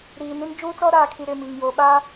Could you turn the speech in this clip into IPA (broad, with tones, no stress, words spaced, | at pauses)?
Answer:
ɾiː˨nĩ˦n d͡ʒuː˦t͡sɔ˦ ɾaː˨ kʰi˦ɾɪ˦˨mi˨ŋ jo˨ɓa˦